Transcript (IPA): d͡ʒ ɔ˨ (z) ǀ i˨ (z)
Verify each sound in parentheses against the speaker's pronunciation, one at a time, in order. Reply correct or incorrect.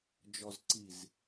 correct, correct

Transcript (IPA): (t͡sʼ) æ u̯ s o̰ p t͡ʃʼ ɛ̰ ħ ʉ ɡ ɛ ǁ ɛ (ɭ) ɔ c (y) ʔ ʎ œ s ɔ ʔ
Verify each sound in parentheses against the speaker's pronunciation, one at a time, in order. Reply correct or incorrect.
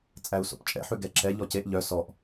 correct, incorrect: ʎ, incorrect: e

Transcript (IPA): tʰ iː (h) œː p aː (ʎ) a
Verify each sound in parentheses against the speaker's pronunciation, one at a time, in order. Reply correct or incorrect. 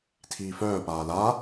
incorrect: f, incorrect: l

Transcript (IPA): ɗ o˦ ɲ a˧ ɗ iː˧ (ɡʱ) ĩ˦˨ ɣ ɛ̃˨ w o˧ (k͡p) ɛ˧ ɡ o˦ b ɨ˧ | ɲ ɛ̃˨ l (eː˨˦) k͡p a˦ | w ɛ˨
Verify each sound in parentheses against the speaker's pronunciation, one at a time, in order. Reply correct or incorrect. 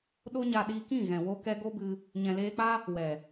incorrect: k, incorrect: k, incorrect: eː˧

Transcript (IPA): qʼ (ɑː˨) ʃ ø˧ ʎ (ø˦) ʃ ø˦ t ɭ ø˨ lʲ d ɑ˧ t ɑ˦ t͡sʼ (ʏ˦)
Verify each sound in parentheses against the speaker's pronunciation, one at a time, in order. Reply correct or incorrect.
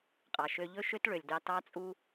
incorrect: ɑ˨, incorrect: ɵ˦, incorrect: u˦

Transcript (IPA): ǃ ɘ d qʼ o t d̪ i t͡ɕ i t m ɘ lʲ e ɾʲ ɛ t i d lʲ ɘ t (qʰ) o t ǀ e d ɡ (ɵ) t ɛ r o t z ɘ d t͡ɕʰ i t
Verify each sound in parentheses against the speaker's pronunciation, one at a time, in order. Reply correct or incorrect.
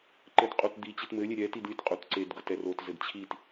incorrect: qʼ, incorrect: ɤ

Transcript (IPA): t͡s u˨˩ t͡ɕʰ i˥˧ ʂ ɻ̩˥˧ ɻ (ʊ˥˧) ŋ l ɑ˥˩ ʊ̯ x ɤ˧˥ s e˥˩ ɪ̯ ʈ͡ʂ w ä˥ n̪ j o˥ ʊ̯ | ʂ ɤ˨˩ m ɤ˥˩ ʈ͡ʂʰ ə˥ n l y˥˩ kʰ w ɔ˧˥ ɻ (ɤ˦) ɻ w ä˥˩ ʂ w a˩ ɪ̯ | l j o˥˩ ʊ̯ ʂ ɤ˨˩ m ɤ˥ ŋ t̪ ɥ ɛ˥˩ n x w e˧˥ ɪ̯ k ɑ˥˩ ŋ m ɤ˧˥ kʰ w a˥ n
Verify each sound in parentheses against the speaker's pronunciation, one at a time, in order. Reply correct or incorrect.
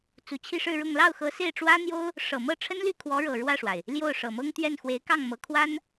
correct, incorrect: ɤ˨˩

